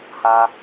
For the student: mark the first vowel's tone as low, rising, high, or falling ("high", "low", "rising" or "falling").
high